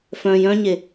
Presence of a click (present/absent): absent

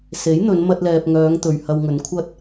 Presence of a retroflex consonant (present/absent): absent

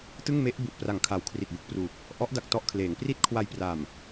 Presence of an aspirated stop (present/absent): present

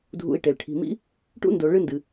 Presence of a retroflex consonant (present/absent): present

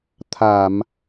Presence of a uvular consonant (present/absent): absent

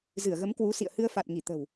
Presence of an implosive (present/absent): absent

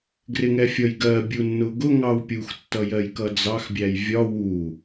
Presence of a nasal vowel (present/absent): absent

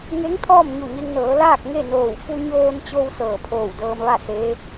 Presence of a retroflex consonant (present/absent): absent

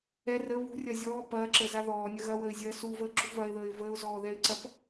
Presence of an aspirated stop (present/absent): absent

